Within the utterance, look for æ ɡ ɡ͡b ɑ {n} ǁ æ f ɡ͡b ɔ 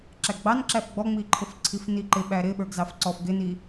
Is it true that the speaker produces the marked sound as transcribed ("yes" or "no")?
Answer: yes